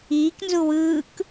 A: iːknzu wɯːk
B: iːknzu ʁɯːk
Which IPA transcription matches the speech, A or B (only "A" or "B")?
A